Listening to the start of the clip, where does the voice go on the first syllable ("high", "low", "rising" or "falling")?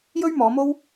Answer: high